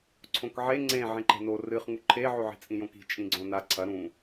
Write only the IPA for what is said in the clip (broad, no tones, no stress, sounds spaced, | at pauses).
ǀʰ õ k ʕ e ŋ͡ǀ ẽ ʕ ẽ ǃ e̤ n o r ɨ χ ŋ u ǃʰ e ʕ ʉ ʕ i̤ t͡sʼ ĩ j õ k i̤ t͡ʃʼ ĩ ɡ͡ǀ õ n a ǀʰ ɐ ɾ ũ